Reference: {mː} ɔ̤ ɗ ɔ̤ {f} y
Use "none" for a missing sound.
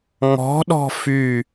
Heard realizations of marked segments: ŋ, f

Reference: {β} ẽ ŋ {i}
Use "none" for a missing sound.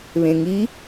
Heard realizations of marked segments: β, i

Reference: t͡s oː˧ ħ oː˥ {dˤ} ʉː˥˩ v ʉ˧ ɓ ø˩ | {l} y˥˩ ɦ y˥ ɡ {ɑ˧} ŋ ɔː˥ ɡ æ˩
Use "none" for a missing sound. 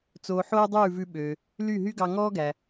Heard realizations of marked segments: dˤ, l, ɑ˧

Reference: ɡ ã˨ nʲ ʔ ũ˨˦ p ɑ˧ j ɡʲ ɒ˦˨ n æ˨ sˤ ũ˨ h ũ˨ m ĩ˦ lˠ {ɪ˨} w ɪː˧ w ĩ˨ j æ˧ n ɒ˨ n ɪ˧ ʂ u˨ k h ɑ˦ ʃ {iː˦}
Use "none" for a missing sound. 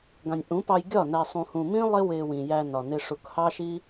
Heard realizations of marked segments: ɪ˦, i˦

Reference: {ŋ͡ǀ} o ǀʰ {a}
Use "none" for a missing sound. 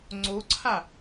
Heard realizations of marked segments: ŋ͡ǀ, a

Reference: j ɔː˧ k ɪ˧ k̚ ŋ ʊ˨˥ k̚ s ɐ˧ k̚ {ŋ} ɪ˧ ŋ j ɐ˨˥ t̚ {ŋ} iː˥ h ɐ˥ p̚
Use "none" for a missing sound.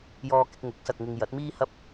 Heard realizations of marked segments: ŋ, m

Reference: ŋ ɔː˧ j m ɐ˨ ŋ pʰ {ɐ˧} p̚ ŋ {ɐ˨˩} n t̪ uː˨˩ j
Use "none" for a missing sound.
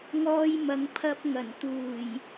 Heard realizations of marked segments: ɐ˧, ɐ˨˩

